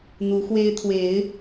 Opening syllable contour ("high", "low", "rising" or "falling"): rising